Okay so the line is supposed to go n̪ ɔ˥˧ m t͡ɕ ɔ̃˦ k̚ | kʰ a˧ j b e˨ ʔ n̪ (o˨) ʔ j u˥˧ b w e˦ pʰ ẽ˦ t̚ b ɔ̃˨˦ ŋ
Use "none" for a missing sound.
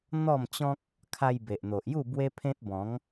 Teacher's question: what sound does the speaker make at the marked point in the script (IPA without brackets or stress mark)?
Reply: o˨